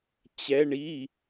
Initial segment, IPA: t͡ɕ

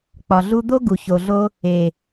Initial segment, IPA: k͡p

